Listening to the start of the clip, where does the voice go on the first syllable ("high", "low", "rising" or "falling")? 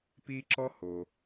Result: high